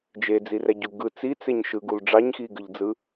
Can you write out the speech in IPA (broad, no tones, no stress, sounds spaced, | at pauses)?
d͡ʒ e d͡z i r æ ɟ u ɡ ɯ t͡s i t͡s e ɲ ʃ ɯ ɡ u l ɖ͡ʐ ɑ ɲ x i ɡ ɯ ʎ d͡z ɯ